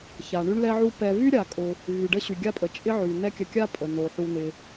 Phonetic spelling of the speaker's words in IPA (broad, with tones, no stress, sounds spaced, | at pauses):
ç a˩ ɳ y˦ ɳ l ɛ˦ ʕ u˦ p ɛ˨ v y˥ ɾʲ a˩ kʼ ʊ˨ | v y˩ ɖ ə˦ ɕ y˩ ɡʲ a˦ pʼ ə˩ t͡ʃʼ ɪ˦ ʕ y˩ n̪ ɛ˦ kʲ ə˨ kʲ a˦ pʼ ə˩ n o˩ ħ u˨ n ɪ˨